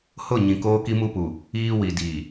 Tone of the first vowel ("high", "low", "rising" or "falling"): falling